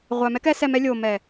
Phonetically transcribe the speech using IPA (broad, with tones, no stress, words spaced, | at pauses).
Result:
ʁʷæ˨ mɛ˦kɛ˦sɛ˧mɛ˦ lʲo˨mɛ˨